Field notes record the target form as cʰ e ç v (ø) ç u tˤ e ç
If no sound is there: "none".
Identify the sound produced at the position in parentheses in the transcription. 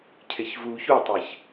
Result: u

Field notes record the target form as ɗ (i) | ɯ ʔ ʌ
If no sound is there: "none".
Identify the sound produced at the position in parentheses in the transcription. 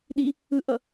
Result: i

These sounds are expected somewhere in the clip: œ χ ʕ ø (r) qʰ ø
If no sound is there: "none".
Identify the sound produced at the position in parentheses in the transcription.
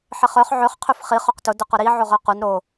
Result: χ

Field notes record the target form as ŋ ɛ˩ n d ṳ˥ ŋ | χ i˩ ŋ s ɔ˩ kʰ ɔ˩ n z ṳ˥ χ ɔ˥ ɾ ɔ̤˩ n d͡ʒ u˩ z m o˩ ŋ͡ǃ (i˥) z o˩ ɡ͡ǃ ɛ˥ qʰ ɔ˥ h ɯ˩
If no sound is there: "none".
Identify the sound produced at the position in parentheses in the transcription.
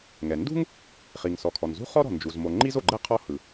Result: i˥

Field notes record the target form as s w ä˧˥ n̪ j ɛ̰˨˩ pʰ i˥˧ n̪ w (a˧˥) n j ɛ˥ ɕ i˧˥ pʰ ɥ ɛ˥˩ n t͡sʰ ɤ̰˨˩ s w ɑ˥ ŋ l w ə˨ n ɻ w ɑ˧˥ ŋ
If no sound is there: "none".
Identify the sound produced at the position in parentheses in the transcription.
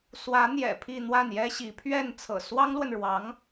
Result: a˥˩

